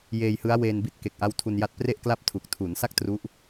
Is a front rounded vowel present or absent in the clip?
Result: absent